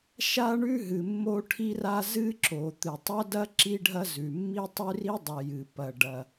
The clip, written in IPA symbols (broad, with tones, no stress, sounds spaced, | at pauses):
ʃ a˥ ɳ ʉ˥ ɦ ɨ˩ mː o˥ ʈʰ i˥ r a˥ z ɨ˥ ǁ o˩ t̪ ɨ˩ tˤ ɐ˥ d ɐ˥ ǁ i˥ ɖʱ ɐ˥ z ʉ˩ mː i˥ tˤ ʉ˥ r i˥ dˤ ɨ˩ j ɨ˩ p ɐ˩ ɖ ɐ˩